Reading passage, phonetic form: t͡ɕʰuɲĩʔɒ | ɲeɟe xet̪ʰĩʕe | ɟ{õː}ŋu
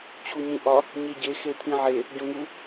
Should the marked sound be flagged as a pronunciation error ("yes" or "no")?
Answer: yes